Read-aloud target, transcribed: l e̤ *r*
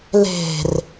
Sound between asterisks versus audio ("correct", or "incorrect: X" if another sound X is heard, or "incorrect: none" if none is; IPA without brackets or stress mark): correct